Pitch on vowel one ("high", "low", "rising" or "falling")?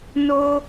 high